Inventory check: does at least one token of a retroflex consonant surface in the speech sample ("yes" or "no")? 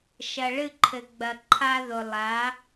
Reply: yes